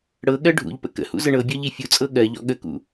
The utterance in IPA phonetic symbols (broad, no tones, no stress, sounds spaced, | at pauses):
ɽ ɤ ɠ ɜ ɖʱ ṵ ʎ p ə̰ k ə̰ h ṵ z ə ɳ ɤ bʲ ɔ ʎ i fʲ u t͡sʼ ɤ ɠ ɜ ʎ ɔ̰ ɠ ə k ṵ